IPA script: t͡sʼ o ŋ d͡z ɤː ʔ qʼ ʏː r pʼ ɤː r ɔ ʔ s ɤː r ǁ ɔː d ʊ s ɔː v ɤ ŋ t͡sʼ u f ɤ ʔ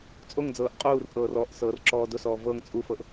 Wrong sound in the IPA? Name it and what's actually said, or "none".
ʏː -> uː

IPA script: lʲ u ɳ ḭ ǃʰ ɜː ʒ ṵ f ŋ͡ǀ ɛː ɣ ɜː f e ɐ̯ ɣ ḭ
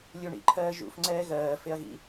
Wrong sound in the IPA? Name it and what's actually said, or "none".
none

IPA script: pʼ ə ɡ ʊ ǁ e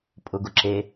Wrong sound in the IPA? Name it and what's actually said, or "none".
ə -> ʊ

